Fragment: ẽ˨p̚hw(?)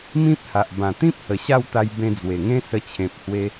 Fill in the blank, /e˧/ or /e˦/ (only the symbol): e˧